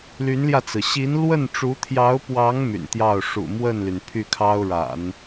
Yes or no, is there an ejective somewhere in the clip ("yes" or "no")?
no